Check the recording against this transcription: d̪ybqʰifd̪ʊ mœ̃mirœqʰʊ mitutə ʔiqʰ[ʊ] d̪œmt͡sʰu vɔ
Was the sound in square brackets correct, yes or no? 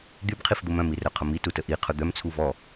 yes